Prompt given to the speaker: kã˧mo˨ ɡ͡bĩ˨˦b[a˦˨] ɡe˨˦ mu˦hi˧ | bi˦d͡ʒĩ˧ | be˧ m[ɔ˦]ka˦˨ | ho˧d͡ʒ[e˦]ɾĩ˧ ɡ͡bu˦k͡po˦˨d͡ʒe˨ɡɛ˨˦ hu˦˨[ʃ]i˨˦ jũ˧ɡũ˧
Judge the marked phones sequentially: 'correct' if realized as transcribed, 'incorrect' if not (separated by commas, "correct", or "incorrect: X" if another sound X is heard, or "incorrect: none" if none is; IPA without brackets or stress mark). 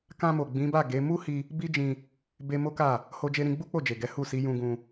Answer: correct, incorrect: o˦, incorrect: e˧, incorrect: s